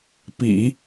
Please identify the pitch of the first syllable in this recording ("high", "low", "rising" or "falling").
low